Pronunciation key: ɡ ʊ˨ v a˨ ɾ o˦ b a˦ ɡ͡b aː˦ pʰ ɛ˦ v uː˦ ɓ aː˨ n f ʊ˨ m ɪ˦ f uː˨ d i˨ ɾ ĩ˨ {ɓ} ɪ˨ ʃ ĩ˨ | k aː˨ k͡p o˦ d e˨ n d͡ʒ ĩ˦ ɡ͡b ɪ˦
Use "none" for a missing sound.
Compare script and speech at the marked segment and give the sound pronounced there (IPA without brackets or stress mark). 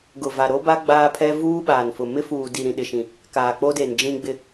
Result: ɗ